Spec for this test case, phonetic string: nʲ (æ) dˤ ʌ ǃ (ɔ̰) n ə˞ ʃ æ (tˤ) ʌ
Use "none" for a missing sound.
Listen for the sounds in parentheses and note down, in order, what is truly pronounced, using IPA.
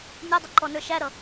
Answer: ɛ, ɔ, ɾ

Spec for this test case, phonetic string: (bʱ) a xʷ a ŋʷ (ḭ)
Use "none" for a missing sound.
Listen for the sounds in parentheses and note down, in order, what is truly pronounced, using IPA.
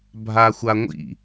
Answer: bʱ, ḭ

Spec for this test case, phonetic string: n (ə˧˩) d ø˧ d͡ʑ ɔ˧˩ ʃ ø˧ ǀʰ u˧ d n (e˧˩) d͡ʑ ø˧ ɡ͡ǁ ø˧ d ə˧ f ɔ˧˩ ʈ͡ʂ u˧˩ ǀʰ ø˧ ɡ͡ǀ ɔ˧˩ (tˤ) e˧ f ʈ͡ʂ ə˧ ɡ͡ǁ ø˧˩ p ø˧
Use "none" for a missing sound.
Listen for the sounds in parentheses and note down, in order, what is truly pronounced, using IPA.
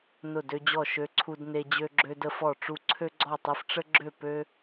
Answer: ʊ˧˩, e˧, tˤ

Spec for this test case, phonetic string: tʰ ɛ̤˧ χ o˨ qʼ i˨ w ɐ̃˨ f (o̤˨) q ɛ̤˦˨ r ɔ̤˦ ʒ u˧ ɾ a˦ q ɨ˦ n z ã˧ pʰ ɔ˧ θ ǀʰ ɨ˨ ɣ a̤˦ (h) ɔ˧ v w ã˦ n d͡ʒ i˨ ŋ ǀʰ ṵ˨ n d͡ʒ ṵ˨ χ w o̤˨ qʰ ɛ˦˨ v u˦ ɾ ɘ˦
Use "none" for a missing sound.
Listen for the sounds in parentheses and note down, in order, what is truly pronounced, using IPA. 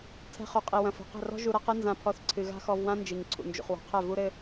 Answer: o̤˨, x

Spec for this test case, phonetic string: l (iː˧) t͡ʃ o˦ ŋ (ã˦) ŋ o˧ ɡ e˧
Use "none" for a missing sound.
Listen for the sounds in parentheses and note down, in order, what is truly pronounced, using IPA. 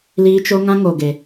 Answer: iː˦, ã˦

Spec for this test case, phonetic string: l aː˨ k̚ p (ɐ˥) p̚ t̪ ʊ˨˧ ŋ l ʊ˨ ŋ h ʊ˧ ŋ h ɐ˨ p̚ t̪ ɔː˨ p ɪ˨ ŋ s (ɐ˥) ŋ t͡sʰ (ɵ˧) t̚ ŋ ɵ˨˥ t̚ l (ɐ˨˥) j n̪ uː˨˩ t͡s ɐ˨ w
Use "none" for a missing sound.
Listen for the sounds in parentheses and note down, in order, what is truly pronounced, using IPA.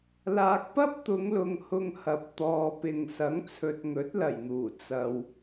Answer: ɐ˥, ɐ˨˥, ɵ˨, ɐ˨˩

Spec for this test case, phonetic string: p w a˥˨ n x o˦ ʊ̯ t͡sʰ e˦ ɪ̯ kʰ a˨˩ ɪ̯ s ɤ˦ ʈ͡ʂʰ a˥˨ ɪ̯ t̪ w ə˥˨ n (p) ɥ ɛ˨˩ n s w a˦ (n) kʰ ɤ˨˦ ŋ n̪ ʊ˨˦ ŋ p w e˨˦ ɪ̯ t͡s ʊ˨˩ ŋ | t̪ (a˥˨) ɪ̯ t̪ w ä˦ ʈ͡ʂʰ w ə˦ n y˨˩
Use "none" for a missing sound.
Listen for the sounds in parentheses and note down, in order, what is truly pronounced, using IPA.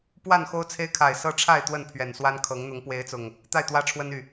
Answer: pʰ, n, a˥˨

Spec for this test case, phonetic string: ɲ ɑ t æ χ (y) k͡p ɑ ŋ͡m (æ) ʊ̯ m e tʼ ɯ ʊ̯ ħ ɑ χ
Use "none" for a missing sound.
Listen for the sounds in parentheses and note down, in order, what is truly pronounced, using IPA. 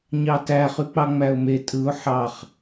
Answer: y, æ

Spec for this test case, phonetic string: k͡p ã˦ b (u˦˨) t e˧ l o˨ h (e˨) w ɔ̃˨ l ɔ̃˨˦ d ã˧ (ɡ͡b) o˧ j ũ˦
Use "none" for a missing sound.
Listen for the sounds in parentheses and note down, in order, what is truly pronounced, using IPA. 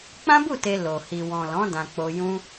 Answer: u˦˨, i˨, k͡p

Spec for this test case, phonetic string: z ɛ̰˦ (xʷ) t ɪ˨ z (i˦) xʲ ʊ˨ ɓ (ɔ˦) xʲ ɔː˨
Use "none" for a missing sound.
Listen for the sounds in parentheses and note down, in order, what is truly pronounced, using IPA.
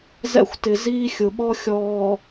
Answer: xʷ, iː˦, ɔ˦

